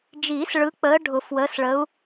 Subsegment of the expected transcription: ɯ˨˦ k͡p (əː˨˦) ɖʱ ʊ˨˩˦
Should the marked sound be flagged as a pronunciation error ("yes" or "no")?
no